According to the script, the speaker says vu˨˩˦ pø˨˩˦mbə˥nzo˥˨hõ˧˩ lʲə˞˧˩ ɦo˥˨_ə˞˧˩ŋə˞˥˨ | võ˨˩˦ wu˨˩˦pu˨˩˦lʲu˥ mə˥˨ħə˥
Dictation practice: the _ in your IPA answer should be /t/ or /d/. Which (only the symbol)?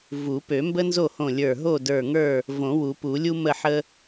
d